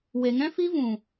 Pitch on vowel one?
low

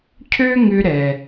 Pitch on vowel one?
high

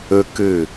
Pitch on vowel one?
high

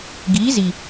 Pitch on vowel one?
rising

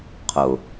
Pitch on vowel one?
low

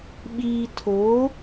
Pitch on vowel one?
low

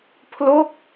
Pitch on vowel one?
falling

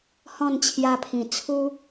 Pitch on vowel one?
falling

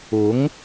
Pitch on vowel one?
rising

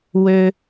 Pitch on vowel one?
high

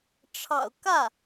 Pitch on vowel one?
low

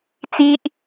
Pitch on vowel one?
high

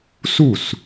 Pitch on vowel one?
falling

